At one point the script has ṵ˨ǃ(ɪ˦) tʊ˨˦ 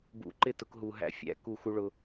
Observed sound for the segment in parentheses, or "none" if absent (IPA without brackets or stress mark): ɪ˦